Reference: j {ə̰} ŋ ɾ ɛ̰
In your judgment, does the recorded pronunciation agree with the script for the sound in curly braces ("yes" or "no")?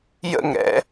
yes